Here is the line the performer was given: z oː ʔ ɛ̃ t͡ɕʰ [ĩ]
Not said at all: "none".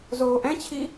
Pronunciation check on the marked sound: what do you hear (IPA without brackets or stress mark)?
i